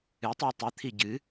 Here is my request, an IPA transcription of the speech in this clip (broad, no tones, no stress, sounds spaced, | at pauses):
ɨ tˤ u tˤ ɨ t̪ʰ i ɟ ɨ